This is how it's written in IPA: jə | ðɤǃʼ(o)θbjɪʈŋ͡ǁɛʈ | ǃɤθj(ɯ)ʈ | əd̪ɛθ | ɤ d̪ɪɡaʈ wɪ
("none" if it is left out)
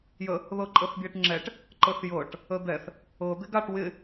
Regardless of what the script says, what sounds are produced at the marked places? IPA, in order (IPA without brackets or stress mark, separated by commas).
ɤ, ɤ